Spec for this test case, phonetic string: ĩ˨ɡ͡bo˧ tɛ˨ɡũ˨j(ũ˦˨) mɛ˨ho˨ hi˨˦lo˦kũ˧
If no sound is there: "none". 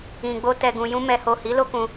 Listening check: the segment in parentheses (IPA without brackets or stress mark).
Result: ũ˧